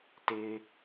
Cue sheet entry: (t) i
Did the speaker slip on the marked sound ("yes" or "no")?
no